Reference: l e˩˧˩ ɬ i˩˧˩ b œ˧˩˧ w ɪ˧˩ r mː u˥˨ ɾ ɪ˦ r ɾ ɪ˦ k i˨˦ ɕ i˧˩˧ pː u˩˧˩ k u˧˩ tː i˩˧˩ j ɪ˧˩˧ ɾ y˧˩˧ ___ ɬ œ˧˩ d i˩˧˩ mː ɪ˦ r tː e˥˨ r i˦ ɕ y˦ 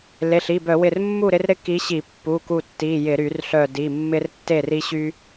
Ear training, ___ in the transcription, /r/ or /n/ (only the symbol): r